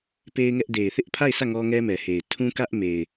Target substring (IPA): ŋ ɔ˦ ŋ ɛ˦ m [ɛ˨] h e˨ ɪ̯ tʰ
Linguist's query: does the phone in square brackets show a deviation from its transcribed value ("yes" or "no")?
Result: no